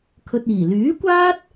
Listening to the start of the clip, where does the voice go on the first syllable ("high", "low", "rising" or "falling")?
low